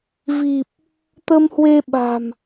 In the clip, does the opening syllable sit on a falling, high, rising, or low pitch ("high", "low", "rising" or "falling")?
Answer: low